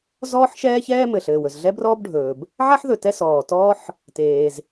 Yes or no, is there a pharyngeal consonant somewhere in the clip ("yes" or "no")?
yes